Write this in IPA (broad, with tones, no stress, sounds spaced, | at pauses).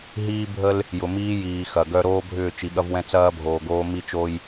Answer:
ɦ iː˦ bʱ ə˦ l | j ʊ˨ m iː˦ j iː˨ x ɐ˨ ɡ œ˦ ɾ oː˦ bʱ ʏː˦˨ t͡ʃ i˨ ɠ ɐ˦ v w ɛ̃˦ t͡s ɐː˦ bʱ oː˨ ɡ oː˦ m i˦ t͡ʃ o˦ j